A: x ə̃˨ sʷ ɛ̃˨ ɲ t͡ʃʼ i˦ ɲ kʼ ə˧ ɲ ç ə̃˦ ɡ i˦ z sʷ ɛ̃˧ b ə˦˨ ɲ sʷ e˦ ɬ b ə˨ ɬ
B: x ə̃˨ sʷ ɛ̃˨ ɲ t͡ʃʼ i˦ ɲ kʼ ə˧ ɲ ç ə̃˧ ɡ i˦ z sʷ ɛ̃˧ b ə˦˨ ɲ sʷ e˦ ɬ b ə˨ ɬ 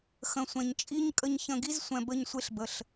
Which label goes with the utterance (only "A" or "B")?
B